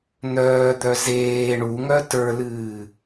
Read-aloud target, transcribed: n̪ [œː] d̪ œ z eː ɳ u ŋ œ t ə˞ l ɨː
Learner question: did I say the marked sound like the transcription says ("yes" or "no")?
yes